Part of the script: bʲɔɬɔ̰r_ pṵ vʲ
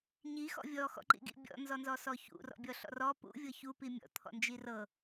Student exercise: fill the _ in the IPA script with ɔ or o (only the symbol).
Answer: ɔ